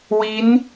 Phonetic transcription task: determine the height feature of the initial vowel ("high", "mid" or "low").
high